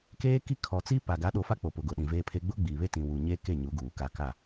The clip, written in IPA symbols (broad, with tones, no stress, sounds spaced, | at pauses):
k eː˦ k i˦ kʰ ɔ˨ t͡s i˦ p a˨ ɡ a˨˦ ɗ o˨ f a˦ k͡p o˨ p ʊ˨ ɡ ʊ˨ ɗ ĩ˨ v eː˦ pʰ e˦ ɡ͡b ʊ˦ ɡ͡b iː˨ β e˦ t ĩ˨ w u˨ ɲ eː˦ k e˦˨ ɲ u˨˦ ɡ uː˨ k a˦˨ k a˦˨